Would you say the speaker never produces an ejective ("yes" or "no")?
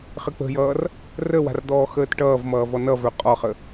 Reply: no